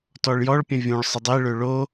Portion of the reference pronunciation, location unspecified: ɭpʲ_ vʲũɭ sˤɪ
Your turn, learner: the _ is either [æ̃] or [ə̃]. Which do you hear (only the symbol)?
ə̃